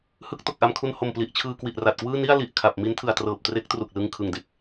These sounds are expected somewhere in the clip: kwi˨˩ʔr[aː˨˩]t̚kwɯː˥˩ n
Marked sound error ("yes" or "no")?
yes